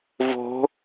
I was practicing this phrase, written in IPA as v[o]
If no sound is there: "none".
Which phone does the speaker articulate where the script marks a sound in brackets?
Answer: o̤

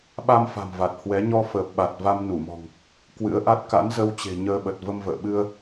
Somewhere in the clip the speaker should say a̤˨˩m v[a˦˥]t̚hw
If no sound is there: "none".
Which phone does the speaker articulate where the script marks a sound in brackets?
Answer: a˨˩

